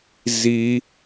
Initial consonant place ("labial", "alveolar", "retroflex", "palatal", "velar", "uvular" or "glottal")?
alveolar